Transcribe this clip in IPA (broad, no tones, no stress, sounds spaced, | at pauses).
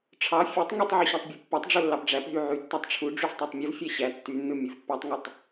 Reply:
ʈ͡ʂʰ ɑ fʲ u tˤ ŋ y tˤ ʕ y ɕ æ tˤ bʲ ɯ pː ɑ tˤ ɖ͡ʐ o lː ɑ p ɖ͡ʐ æ p ɦ y ʕ y tː æ tˤ ʈ͡ʂʰ u ɖ͡ʐ y v tˤ æ tˤ mʲ ɯ v fʲ æ ɕ æ tː y nː ɯ mʲ ɯ v pː æ tˤ ŋ u tˤ